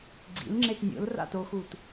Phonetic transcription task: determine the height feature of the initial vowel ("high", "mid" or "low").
high